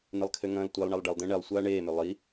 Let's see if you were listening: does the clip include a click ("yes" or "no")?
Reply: no